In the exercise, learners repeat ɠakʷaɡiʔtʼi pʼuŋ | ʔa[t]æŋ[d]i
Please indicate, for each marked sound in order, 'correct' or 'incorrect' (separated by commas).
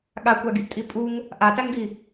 correct, correct